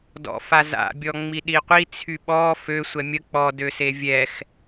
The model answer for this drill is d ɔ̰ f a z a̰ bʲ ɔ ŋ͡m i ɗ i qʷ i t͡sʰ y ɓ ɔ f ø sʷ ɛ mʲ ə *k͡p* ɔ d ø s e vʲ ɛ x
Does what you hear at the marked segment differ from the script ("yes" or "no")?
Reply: no